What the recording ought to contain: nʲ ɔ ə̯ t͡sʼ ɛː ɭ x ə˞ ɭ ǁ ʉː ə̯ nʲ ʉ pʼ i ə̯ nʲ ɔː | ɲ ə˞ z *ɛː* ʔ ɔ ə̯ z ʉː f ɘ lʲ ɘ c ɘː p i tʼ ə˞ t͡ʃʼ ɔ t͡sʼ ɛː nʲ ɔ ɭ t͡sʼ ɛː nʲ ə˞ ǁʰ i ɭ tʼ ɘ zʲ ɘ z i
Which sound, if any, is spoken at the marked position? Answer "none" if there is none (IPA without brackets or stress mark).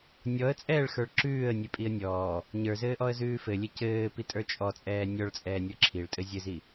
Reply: ɘː